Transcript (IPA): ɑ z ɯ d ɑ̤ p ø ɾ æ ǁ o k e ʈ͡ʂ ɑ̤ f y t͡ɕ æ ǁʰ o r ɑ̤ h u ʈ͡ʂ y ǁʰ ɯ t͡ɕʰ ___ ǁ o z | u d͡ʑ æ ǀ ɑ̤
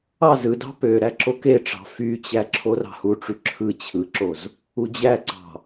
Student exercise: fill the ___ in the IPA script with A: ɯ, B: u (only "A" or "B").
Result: A